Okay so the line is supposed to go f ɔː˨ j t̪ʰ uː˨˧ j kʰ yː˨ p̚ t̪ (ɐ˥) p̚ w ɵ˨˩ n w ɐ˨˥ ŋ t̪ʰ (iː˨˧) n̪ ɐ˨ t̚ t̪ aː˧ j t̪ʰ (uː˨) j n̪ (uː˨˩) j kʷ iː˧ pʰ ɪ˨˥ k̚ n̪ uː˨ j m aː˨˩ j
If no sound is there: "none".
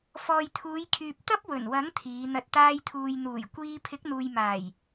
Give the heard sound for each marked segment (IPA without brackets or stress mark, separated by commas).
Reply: ɐ˥, iː˨˧, uː˨, uː˨˩